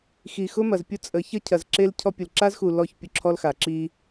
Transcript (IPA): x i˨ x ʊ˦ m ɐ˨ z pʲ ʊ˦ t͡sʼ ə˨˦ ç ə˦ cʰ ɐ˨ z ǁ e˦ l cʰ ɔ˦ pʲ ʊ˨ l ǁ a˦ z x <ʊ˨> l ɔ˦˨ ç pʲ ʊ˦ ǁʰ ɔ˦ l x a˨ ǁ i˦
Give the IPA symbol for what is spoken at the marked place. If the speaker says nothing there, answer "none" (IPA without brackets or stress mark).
u˨